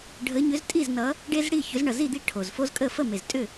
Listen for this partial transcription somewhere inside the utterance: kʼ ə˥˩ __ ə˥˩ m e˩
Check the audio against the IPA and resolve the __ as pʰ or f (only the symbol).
f